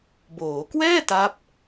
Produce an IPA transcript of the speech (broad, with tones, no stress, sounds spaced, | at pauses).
b oː˩˦ k w ɛː˥˩ t a˦˥ p̚